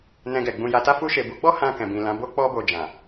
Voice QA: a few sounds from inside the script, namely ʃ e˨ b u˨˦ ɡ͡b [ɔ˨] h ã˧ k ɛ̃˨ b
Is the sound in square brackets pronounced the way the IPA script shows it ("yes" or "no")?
no